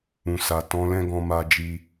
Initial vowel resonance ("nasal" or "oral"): nasal